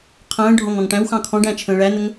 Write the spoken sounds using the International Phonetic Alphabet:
qʰ ə̃ː ɖʱ ɔ̃ ŋ ɔ̃ ŋ ʈ æ̃ w x ɑ̃ kʰ ɔ̃ ɖ æ̃ t͡ʃʰ ə̃ː ɭ æ n ə ŋ

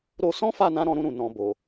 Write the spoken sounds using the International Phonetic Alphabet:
ɾ o˧ s ɔ̃˦ f a˦˨ n ã˨˦ ɾ ɔ̃˧ ɾ ũ˧ ɾ ũ˨ n ɔ̃˨ b o˨

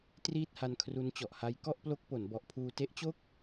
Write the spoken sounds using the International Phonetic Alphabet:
t r iː˥˩ t̚ h a˧ n kʰ r u˦˥ n t͡ɕ ɔ˨˩ ʔ h a˦˥ j k ɔ˥˩ ʔ p l o˦˥ k̚ p o˩˦ n b ɔ˨˩ ʔ pʰ uː˧ t e˦˥ ʔ t͡ɕ o˥˩ k̚

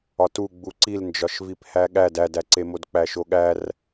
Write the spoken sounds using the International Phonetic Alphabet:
ɒ t u ɡ͡b u ǀ i l n d͡ʒ ɒ ʃ v i p h æ ɠ æ d æ d æ ǀ e m o d k͡p æ ʃ o ɠ æ r

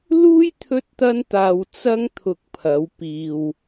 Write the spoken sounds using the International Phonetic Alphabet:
l uː˥ j t̪ʰ ɵ˥ t̚ t̪ ɐ˥ n t̪ aː˧ w t͡s ɐ˥ ŋ t̪ʰ ʊ˧ k̚ pʰ ɐ˨˧ w p iː˧ w

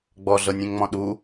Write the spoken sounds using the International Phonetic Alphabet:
ɡ͡b ɔ ɮ ɤ nʲ ẽ ŋ ŋ͡m ɔ̃ ɗ u

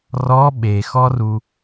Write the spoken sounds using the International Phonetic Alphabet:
r ɔ ɓ e x ɔ r u

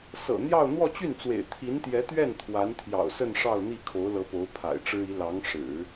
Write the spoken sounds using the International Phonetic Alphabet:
s ɤ̰˨˩ n̪ j ɑ˥˧ ʊ̯ n̪ w ɔ˥˧ t͡ɕ y˥˩ n t͡s w ḛ˨˩ ɪ̯ t̪ʰ i˧˥ n t̪ j ɛ˧˥ t̪ ɥ ɛ˥˩ n t̪ʰ w a˧˥ n t̪ʰ j ɑ̰˨˩ ʊ̯ s ə˥˧ n ʂ ɑ˥˧ ʊ̯ n̪ i˥˩ kʰ o˧˥ ʊ̯ l ɤ˧˥ p o˧˥ ʊ̯ pʰ a̰˨˩ ɪ̯ ʈ͡ʂ ɻ̩˥ i˧˥ l ɑ˧˥ ŋ ʂ ɻ̩˨˩˦

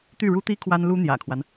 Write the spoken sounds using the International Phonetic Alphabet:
t̪ y˥˩ ɻ u˥ t̪ i˥ kʰ w a˥ n l u˥ n̪ j ä̰˨˩ kʰ w a˦ n

